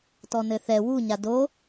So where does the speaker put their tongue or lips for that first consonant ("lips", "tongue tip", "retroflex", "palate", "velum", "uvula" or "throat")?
tongue tip